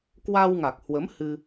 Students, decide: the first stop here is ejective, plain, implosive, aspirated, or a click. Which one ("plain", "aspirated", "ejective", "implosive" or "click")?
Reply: plain